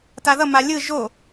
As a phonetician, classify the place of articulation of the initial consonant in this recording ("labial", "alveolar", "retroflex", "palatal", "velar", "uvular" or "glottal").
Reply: alveolar